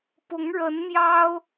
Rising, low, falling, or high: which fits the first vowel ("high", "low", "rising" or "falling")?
rising